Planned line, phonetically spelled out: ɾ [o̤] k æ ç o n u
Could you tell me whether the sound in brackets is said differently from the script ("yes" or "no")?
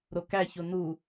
yes